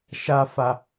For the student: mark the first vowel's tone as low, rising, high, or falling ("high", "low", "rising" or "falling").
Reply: high